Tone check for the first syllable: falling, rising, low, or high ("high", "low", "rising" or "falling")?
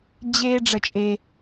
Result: high